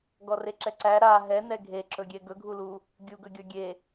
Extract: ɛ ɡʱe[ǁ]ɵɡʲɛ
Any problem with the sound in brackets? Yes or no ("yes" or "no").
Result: no